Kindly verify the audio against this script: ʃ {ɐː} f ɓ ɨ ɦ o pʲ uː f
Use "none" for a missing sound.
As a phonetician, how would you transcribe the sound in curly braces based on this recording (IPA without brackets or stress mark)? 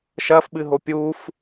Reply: ɐː